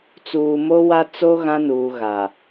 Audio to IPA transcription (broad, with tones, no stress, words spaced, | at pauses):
t͡suː˨mo˦ wa˦t͡so˦ ɣã˦nuː˨ ɣa˨